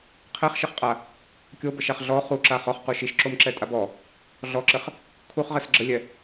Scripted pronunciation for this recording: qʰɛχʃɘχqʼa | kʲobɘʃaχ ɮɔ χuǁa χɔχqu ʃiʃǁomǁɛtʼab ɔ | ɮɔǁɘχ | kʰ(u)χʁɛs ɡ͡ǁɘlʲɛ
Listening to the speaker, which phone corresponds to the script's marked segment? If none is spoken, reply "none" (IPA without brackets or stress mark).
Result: u